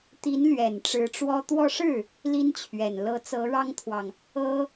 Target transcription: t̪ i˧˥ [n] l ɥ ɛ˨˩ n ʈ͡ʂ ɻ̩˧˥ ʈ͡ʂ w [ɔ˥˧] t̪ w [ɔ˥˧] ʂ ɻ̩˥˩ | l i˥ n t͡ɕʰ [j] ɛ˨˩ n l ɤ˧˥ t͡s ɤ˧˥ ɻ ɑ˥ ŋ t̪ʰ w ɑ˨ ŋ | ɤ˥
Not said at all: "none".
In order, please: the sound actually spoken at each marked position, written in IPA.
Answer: n, ɔ˥, ɔ˥˧, ɥ

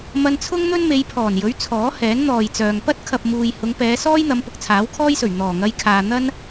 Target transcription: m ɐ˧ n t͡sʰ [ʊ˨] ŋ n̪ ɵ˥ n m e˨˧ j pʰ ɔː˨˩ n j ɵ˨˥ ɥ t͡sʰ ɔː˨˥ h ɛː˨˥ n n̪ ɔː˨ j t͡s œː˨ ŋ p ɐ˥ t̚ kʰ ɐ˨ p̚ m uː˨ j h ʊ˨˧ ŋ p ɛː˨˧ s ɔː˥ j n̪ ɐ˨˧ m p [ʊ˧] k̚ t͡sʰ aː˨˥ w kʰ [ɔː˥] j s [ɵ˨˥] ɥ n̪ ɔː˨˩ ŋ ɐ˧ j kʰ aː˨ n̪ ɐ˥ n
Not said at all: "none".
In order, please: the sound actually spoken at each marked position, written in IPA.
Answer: ʊ˥, ʊ˧, ɔː˥, ɵ˨˩

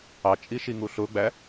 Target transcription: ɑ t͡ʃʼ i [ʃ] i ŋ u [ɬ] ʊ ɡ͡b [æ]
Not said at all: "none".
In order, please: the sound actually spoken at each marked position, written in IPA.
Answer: ʃ, ɬ, æ

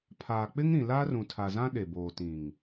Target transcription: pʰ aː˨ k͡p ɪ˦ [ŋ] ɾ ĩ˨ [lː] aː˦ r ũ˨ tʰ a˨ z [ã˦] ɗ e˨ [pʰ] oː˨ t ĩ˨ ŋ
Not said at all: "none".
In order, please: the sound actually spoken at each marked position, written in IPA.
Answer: ŋ, l, ã˦, b

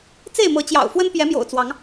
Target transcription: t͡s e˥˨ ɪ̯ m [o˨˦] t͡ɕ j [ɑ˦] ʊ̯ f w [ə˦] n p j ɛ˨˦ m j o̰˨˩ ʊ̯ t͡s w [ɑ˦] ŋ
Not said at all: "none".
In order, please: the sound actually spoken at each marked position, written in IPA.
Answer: ɤ˨˦, ɑ̰˨˩, ə˦, ɑ˨˦

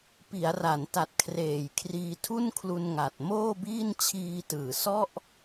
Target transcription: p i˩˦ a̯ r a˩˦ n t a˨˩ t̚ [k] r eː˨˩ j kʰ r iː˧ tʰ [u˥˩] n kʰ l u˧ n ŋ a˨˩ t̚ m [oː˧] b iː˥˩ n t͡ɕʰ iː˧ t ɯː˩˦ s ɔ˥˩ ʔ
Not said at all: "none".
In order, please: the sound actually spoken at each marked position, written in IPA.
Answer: kʰ, u˥˩, oː˥˩

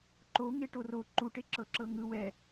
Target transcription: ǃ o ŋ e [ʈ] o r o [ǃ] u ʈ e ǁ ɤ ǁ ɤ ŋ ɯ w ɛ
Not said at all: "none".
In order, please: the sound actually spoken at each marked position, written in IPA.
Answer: ʈ, ǃ

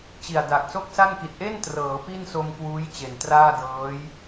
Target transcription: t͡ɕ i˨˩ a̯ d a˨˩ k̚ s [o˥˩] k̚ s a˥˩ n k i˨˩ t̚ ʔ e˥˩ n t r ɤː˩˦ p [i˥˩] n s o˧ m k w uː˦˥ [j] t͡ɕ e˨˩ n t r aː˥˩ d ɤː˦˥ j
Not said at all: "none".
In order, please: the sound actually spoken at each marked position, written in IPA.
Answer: o˥˩, i˥˩, j

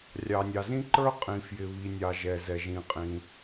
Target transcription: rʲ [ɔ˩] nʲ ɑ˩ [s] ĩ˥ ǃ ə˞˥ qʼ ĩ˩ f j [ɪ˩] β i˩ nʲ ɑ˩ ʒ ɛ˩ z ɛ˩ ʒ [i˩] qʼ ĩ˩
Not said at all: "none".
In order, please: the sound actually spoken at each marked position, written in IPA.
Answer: ɑ˩, z, ɪ˩, ĩ˩

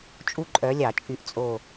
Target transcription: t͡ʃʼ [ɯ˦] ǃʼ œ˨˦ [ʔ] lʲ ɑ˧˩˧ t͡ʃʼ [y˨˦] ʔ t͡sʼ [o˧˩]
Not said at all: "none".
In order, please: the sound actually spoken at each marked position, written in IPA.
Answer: u˦, none, y˨˦, o˧˩

